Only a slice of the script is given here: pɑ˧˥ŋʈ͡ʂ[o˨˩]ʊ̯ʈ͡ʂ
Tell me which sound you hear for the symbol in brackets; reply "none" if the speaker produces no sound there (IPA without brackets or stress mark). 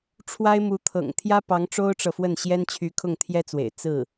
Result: o˥